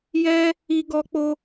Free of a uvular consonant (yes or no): yes